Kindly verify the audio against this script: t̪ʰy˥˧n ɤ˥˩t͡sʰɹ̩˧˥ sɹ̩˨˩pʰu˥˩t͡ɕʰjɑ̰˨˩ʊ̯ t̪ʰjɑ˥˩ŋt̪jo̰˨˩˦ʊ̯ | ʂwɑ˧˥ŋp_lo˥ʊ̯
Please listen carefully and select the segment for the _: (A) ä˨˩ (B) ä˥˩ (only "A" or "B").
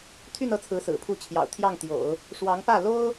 B